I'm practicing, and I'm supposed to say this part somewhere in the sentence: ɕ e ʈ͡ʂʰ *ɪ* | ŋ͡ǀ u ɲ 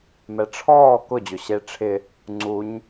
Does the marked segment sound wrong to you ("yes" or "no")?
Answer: no